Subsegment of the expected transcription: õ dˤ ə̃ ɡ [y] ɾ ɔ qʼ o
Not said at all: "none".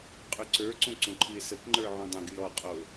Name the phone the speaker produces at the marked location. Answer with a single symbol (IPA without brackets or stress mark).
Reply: y